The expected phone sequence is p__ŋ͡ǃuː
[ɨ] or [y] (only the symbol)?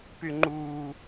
y